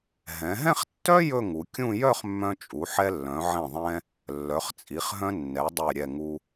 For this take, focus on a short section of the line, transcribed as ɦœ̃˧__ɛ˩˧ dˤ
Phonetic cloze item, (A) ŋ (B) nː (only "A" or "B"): B